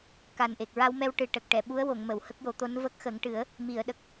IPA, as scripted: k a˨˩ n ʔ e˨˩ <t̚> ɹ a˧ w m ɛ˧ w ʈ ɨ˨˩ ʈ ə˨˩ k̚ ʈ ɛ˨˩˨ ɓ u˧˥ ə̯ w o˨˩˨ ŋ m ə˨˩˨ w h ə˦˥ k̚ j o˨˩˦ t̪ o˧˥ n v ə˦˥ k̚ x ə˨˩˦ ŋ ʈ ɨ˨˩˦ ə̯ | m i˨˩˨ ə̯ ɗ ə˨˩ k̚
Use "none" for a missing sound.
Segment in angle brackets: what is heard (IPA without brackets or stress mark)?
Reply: k̚